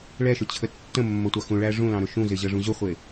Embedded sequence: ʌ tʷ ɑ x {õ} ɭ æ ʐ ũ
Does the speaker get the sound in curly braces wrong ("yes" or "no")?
yes